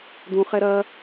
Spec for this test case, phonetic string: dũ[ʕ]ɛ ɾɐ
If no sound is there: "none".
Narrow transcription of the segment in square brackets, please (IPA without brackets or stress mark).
χ